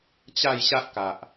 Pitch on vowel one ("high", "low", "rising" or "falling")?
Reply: falling